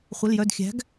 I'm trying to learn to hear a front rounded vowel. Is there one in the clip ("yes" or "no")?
yes